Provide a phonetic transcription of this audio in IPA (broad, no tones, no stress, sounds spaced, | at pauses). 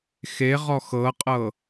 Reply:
x e ʁ ɔ x ɤ qʼ ɤ